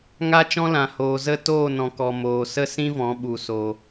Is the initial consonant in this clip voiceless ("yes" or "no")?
no